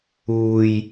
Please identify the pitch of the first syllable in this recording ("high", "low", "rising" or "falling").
low